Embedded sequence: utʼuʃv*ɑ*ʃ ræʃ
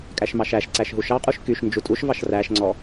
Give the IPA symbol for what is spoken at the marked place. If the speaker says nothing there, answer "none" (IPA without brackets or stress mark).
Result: ɑ